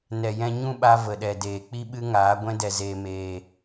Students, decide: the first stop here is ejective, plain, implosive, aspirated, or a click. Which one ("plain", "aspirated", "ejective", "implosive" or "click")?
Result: implosive